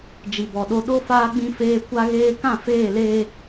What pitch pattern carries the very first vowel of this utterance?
low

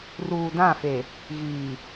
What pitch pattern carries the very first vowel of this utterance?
low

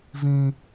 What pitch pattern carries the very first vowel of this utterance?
high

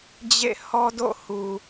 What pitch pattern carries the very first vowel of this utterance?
falling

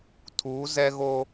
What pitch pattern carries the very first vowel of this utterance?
rising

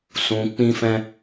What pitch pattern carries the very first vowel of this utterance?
low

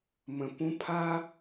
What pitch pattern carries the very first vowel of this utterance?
low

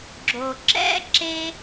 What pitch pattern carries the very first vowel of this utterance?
low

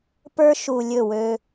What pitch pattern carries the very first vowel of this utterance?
high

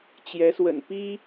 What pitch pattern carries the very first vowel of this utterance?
rising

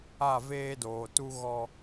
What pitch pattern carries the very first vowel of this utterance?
falling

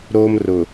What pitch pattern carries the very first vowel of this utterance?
high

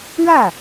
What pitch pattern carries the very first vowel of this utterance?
falling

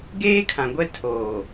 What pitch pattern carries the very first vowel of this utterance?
high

